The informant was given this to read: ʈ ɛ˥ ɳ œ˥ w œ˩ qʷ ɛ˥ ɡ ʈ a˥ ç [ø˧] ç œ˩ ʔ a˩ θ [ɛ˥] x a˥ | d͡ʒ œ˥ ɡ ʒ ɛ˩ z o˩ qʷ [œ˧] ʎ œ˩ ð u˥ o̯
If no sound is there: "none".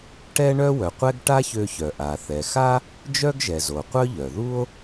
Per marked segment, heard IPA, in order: ø˧, ɛ˩, œ˥

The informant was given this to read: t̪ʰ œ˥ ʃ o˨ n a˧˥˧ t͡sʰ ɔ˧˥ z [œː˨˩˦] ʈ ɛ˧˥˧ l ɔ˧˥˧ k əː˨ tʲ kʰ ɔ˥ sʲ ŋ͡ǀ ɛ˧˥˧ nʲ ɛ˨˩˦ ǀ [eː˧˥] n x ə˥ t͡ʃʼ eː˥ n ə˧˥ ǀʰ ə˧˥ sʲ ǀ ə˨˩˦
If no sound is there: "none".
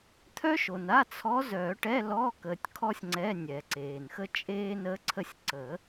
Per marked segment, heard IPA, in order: œː˨˩˦, eː˨

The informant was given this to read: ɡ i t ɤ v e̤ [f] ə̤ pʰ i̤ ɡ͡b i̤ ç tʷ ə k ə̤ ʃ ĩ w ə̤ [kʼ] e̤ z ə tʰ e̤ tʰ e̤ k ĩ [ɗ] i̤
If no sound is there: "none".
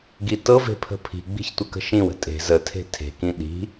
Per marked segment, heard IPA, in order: pʰ, tʼ, ɗ

